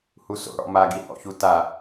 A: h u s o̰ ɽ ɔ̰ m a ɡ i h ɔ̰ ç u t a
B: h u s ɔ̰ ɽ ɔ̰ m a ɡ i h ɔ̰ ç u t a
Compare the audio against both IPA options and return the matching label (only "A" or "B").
A